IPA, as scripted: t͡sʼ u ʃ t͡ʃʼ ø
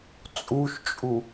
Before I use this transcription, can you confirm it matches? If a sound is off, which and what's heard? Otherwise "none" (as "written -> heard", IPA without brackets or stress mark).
ø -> u